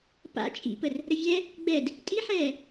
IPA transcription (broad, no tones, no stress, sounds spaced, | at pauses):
p a̰ t͡ʃʼ ḭ p ə r | ɾ ə vʲ ɛ | ɡ͡b ɛ d | tʼ i ħ ɛː